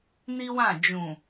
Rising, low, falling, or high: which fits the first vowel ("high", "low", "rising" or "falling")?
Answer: high